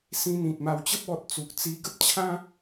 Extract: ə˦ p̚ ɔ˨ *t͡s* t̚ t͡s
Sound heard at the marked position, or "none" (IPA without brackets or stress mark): none